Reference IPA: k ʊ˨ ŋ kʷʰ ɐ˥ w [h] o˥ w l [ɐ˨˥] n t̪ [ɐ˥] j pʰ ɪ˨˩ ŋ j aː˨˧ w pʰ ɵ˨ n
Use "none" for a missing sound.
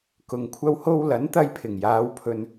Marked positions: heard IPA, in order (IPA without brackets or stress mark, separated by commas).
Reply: h, ɐ˨˥, ɐ˧